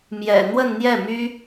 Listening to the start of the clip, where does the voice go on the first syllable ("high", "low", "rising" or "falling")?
low